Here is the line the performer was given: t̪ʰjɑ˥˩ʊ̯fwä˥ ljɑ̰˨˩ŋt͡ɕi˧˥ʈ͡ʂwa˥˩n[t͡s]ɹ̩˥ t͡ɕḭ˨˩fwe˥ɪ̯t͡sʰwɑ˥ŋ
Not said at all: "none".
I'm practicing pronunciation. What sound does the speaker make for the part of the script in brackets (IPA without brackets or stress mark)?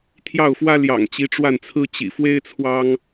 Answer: t͡sʰ